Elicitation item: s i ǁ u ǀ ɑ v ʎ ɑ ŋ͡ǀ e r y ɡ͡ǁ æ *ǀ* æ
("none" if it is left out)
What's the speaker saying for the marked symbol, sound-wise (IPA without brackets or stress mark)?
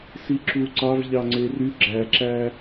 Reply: ǁ